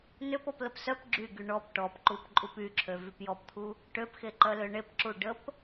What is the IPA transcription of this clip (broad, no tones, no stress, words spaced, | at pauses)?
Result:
nøpɔpləp sœp ɡ͡ǁyɡy ɳɔp ʈɔpǃup ǃʼupyǁʰø vypjɔpt̪ʰu | ʈøpxeǃœlø ɳepǁu ɖəp